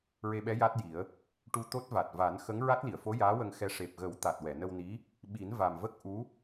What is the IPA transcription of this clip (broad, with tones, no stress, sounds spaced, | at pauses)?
ɹ e˧ ɓ ɛ˧˥ j a˦˥ t̚ j i˨˩˦ ə̯ | ʈ u˧ t̪ o˦˥ t̚ v a˨˩ t̚ v a˨˩˦ n x ə˧˥ ŋ ɹ a˦˥ t̚ l i˨˩˨ ə̯ f o˧˥ j aː˧˥ w ə˧ ŋ x ɛ˧ ʂ e˨˩ p̚ ɣ ə˨˩˦ w t̪ a˨˩ t̚ w ɛ˨˩˨ n ə˧ w n i˧˥ | ɓ i˨˩˦ n v a˨˩ m v ə˦˥ k̚ ʔ u˧˥